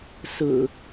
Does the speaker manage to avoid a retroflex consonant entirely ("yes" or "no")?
yes